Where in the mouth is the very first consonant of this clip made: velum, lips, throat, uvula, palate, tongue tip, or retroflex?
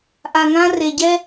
throat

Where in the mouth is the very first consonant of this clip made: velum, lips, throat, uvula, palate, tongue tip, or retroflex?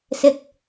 tongue tip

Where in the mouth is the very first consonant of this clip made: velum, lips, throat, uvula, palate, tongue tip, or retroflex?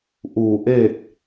throat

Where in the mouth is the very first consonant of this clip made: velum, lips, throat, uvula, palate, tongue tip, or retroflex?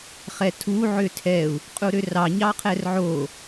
uvula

